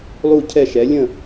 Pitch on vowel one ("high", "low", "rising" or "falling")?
falling